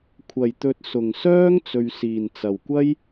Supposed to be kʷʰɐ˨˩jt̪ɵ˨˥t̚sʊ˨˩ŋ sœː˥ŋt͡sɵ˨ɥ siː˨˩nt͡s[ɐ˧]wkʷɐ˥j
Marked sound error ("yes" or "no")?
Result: yes